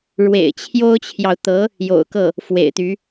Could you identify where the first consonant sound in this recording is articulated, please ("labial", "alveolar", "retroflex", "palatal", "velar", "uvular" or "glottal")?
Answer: retroflex